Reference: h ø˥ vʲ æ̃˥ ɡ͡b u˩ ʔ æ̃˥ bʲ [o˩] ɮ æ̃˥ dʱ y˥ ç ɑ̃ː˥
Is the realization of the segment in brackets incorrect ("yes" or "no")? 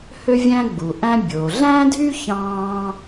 no